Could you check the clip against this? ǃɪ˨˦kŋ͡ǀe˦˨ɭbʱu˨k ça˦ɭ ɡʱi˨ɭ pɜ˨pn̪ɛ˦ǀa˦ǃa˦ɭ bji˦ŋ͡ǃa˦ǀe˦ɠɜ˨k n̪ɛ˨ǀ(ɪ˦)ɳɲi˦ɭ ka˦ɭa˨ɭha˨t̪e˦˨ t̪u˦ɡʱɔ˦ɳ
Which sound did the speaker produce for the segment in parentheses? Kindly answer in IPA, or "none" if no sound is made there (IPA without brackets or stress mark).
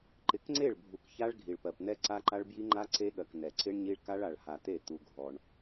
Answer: ɪ˦